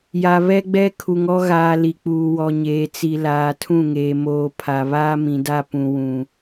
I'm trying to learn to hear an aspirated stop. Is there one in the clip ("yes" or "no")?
yes